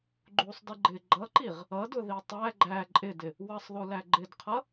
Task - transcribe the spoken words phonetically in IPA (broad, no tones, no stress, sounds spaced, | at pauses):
ɡ͡ǃ u sˤ d ɪ ɡ͡ǃ ɪ ɡ͡ǃ ʌ ǃ i ʁ | ʌ d ʊ ð i tˤ æ ɡ͡ǃ æ ǃʼ ɪ d ɪ | w ʌ sˤ ð u l æ ɡ͡ǃ ɪ d qʰ ʌ